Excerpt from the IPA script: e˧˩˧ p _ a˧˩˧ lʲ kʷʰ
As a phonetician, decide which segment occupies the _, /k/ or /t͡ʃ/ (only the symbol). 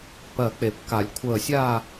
k